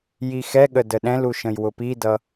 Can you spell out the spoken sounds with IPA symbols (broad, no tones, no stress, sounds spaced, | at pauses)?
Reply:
j i x ɛ ɠ ə d ə ɗ ɛ̃ l u ʃ ə̃ j w ʊ p i d ʌ